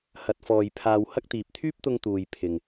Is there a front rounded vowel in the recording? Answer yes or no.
yes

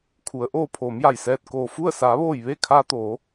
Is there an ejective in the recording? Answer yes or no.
no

